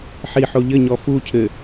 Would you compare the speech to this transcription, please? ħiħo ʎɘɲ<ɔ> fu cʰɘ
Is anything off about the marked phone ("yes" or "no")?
no